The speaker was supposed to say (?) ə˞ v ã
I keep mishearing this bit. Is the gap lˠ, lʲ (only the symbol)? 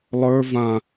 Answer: lˠ